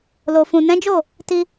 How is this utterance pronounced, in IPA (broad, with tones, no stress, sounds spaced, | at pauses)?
l o˨ f ũ˨ n ɛ̃˨˦ d͡ʒ o˦˨ | t i˧